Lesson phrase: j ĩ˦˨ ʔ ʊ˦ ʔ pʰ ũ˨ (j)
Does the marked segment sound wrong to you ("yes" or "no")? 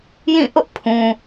yes